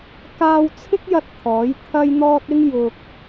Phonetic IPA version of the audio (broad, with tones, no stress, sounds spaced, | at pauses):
k aː˧ w t͡sʰ ɪ˥ k̚ j ɐ˥ t̚ t̪ʰ ɔː˨˥ j t̪ʰ ɐ˥ j n̪ ɔː˥ t̚ ɪ˥ ŋ j ʊ˧ k̚